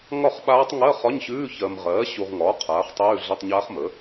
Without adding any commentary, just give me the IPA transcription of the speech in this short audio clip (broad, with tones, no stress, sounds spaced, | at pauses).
ŋ ɒ˥˩ χ ɓ aː˦˥ tˤ ŋ ɜ˧˥˧ χ ɒ˧˥˧ ɲ ɕ ʉː˧˥˧ ç ɜ˨ m ʁ ɜː˩˥ ɕ u˨ ʁ ŋ ɒː˩˥ qʰ aː˩˥ χ tˤ ʉː˧˥˧ ɮ ə˧˥˧ tˤ ɲ aː˦˥ χ m ə˩˥